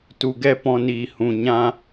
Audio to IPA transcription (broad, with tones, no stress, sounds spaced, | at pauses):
t u˨ ɡ ɛ˦˨ p ɔ̃˧ n iː˨ h ũ˨ ɲ ã˧